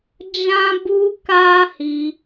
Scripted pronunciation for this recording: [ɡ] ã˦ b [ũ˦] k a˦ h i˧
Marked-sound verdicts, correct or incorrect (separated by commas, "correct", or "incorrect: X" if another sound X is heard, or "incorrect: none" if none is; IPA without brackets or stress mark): incorrect: d͡ʒ, incorrect: u˦